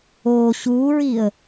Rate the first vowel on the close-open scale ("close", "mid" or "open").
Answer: mid